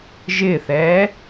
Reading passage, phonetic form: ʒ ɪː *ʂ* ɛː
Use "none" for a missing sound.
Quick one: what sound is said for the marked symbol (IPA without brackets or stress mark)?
θ